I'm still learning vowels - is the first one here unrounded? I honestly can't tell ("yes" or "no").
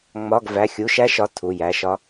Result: no